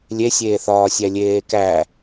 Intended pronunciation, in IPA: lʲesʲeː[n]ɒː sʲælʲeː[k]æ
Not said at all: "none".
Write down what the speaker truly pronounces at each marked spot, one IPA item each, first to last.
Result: θ, k

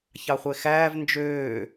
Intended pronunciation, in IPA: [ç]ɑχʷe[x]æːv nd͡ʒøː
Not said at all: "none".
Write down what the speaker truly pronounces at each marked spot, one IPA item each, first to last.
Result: ç, x

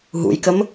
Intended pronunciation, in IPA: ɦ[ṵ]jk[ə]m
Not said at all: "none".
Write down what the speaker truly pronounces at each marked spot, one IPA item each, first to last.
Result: ṵ, ə

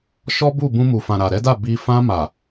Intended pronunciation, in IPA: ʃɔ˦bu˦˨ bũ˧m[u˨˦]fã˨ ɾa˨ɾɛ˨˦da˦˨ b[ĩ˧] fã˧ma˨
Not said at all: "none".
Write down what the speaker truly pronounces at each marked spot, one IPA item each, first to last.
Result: u˨, i˧

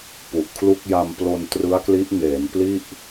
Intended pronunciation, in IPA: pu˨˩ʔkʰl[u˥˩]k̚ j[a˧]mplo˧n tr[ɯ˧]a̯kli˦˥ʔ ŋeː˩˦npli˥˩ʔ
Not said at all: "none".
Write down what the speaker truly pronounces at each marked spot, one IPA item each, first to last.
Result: u˥˩, a˧, ɯ˦˥

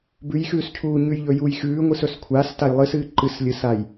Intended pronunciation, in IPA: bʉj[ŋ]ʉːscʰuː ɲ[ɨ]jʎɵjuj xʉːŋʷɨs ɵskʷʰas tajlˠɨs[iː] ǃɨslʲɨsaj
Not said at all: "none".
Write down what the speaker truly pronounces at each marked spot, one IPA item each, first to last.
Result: x, ʉ, ɨː

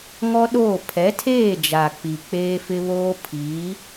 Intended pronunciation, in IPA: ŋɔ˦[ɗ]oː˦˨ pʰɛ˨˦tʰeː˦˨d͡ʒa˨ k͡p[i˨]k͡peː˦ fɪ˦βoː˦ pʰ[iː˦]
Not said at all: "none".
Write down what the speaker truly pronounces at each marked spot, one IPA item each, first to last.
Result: ɗ, i˨, iː˨˦

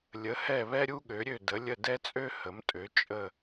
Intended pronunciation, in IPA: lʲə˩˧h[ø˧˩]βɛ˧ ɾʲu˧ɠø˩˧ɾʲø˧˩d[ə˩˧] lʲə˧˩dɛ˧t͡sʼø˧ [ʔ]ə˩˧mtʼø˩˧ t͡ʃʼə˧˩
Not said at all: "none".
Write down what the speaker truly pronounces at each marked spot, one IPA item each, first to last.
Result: ɛ˧˩, ə˩˧, h

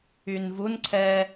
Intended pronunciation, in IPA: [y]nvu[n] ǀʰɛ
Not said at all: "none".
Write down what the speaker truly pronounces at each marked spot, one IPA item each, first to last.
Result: y, n

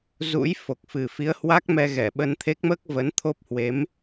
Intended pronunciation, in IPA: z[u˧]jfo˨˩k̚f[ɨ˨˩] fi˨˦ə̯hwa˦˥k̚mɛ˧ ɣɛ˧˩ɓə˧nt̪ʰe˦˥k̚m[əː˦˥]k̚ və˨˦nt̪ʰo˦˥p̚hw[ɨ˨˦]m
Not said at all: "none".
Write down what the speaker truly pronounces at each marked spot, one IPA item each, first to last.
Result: ṵ˧˥, ɨ˨˩, əː˦˥, e˨˦

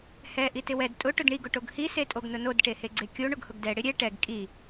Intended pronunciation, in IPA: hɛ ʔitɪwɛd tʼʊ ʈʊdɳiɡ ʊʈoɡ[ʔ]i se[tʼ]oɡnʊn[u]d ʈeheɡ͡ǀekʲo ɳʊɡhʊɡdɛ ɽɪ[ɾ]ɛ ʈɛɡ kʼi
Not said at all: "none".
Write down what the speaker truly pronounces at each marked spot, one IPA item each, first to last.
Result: h, tʼ, o, ɾʲ

